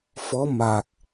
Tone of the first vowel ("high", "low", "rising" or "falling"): rising